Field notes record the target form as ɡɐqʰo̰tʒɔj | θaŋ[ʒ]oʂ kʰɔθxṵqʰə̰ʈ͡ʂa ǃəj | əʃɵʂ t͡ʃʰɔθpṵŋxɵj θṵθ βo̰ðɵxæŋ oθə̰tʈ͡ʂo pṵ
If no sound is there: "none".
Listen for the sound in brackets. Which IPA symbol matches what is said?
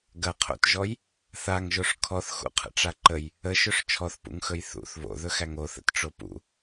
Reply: ʒ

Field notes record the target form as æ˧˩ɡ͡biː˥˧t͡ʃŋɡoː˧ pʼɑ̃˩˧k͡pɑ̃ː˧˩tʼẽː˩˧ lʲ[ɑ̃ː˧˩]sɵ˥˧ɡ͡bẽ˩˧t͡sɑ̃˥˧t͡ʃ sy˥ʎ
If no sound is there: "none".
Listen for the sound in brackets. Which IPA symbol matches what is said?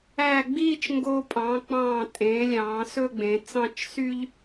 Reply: ɑ̃ː˩˧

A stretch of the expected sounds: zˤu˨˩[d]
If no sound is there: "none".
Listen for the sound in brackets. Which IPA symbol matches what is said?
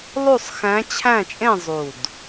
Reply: d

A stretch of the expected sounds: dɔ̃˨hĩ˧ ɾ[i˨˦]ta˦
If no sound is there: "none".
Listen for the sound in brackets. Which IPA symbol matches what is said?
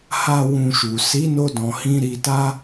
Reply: i˧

